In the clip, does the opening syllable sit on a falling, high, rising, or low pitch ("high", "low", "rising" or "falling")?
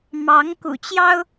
rising